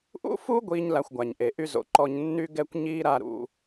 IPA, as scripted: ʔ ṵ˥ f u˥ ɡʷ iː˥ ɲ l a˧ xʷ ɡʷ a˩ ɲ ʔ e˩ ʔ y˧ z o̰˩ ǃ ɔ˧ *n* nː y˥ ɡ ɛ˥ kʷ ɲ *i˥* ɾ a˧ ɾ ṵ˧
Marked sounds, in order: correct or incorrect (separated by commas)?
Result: incorrect, incorrect